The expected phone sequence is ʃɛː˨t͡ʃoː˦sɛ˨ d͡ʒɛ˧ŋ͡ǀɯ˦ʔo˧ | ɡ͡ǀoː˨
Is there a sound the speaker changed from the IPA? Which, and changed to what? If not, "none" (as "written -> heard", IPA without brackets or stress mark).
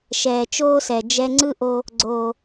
none